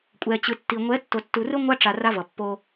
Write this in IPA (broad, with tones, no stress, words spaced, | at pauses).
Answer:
kʷʼɛ˨t͡ɕɯ˨ tːi˨ ŋʷɛ˨˦tːo˨tːu˨rɯ˦ ŋʷa˦ ʈ͡ʂa˨ ra˦vʌ˨ pːo˦